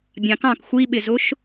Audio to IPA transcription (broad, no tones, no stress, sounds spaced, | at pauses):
bʲ ɑ̃ k ɑ̃ k xʷ i ɓ ɪ z ʊ ʃ